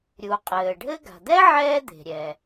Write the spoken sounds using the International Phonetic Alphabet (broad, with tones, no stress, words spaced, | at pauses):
ɾʲu˩qʼɘː˩ ɖʱɘ˥ ɡa̤˩d̪ɛ˥ ʕɛː˥d̪e̤˩ɾʲɛ˩